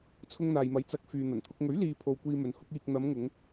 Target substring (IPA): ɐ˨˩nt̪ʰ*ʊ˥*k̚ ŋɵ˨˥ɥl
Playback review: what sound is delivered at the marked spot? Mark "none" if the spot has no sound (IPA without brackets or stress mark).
ʊ˧